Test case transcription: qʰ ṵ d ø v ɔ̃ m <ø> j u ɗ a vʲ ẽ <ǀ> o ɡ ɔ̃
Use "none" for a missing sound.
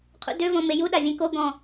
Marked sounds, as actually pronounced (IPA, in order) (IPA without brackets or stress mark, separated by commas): e, k